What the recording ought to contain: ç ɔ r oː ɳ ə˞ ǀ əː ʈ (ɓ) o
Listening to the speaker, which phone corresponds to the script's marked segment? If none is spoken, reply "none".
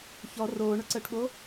ɓ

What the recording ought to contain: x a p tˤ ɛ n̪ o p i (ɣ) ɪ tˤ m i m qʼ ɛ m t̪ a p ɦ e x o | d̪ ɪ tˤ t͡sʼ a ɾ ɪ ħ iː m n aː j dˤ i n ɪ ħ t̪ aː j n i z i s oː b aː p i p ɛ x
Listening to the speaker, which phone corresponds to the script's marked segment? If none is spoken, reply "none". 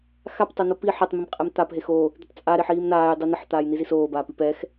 ħ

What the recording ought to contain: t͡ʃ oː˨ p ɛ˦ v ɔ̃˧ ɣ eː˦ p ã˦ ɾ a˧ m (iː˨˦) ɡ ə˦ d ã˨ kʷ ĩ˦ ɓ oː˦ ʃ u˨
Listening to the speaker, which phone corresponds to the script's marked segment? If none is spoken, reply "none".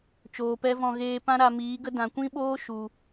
iː˨˦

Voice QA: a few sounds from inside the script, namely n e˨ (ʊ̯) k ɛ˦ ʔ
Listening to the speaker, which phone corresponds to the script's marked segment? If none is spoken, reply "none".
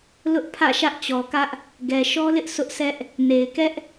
ɪ̯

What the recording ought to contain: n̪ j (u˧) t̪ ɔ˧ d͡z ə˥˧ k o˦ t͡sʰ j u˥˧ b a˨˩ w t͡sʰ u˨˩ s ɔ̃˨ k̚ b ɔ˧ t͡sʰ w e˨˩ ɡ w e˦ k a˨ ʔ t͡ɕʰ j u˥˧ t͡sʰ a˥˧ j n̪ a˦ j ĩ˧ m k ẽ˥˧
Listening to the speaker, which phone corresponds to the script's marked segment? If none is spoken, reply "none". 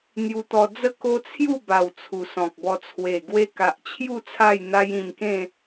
u˧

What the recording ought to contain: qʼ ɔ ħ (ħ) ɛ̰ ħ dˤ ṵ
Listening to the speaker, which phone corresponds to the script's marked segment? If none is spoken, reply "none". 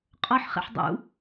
χ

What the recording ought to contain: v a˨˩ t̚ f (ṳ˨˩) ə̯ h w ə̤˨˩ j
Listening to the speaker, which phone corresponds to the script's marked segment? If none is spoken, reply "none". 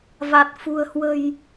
ṳ˨˩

